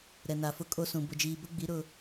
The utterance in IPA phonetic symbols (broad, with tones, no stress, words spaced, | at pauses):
ɾɛ˨na˨fʊ˦ kʼo˦sũ˨ bʊ˨d͡ʒiː˨bʊ˦ɡ͡bi˨˦ ɾʊ˦